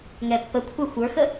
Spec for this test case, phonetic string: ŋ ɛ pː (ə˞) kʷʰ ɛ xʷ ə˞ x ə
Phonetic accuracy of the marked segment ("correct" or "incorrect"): incorrect